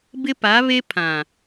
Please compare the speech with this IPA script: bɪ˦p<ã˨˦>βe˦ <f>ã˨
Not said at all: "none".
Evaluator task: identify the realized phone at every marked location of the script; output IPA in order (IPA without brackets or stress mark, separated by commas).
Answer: a˨˦, pʰ